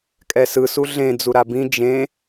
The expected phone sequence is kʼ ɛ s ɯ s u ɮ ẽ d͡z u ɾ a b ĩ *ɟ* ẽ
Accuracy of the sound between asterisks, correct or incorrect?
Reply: incorrect